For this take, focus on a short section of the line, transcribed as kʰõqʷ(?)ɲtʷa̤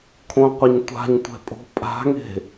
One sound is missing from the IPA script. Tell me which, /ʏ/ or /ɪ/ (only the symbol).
ɪ